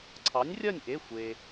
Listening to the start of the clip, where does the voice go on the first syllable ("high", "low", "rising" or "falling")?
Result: rising